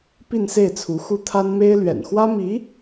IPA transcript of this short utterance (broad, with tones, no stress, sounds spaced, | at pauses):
p i˥˧ n s e˥˩ ɪ̯ t͡sʰ u˧˥ x u˥ t̪ʰ a˥ n m e˥ ɪ̯ l ɥ ɛ̰˨˩ n x w ä˥ m i˧˥